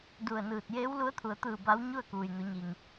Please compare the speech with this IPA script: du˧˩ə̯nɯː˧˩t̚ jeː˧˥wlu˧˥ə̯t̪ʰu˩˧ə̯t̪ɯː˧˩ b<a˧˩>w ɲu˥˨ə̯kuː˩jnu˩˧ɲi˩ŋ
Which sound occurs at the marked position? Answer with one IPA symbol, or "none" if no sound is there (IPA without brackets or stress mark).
a˧˥